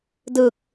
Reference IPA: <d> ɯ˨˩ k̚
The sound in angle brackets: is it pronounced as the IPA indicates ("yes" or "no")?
yes